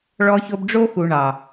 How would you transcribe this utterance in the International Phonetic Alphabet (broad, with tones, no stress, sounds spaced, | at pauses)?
ɭ ɔ˧ ç o˧ b ɖ͡ʐ o˦ x u˨ ɳ ɑ˨